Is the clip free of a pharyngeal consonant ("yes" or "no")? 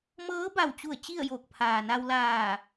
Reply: yes